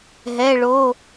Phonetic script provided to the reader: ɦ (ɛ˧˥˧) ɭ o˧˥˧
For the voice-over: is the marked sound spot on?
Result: yes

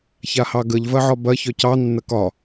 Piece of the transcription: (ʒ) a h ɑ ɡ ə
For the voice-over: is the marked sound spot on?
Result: no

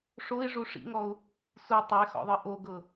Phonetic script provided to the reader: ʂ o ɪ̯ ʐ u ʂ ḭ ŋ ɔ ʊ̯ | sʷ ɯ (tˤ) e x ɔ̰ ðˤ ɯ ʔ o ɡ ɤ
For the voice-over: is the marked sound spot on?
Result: yes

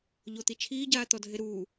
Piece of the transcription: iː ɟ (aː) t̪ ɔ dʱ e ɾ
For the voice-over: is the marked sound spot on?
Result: yes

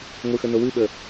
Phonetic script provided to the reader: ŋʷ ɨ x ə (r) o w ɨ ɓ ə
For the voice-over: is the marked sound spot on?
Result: no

